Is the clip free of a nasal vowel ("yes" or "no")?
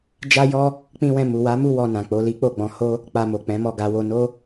no